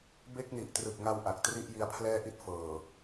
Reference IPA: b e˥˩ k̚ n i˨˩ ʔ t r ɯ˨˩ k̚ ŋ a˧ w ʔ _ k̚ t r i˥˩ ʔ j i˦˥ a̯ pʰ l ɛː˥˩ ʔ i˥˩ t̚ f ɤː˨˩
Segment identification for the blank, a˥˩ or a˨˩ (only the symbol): a˨˩